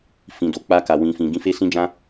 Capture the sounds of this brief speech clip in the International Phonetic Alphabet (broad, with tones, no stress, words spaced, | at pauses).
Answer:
fĩ˨do˨ k͡pa˧ka˨ wĩ˨fĩ˨ ɡĩ˧fe˦sĩ˦d͡ʒã˦